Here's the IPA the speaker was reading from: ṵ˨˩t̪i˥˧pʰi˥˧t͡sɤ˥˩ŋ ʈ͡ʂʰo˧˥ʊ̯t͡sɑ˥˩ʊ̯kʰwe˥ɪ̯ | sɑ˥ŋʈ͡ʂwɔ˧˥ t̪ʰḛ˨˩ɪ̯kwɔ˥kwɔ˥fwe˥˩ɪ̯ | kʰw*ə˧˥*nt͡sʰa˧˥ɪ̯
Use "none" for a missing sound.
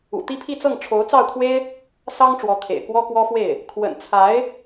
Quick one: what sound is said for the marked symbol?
ə̰˨˩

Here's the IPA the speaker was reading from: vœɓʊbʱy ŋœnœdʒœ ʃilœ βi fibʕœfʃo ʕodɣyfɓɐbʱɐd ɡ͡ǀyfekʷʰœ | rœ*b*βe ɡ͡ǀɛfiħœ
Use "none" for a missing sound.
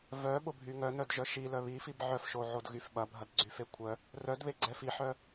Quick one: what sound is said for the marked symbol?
d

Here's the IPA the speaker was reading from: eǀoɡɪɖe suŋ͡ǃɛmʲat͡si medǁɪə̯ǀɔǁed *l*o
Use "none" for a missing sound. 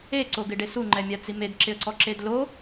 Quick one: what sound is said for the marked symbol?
l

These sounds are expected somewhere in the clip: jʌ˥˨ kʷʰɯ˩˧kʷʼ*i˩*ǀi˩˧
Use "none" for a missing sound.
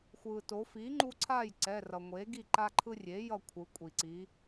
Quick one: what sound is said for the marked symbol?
i˩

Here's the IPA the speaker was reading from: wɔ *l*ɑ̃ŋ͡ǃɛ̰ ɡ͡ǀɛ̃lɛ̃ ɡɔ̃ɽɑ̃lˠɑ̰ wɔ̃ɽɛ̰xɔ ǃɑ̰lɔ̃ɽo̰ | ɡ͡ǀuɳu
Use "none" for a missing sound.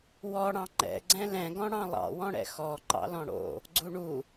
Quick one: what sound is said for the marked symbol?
ɽ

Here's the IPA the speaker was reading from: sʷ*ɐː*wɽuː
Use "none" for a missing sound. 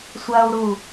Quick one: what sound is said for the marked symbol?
ɐː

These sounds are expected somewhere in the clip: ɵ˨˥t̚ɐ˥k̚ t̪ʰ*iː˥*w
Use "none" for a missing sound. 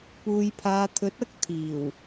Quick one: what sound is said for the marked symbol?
iː˨˩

